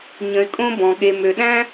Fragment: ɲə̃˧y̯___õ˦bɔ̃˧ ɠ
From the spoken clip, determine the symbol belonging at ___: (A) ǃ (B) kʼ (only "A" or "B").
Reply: B